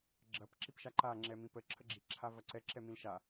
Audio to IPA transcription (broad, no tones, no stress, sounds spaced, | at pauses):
ɡ͡ǁ ɐ p ǁ i p ʃ a ǃ a ŋ͡ǁ ɛ m ĩ p ə ǁʰ ə ɡ͡ǁ i ǁʰ a v ɐ ǀ ɛ ǁ ɛ m ĩ l ʃ a